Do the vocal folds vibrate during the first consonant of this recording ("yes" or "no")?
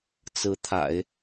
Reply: no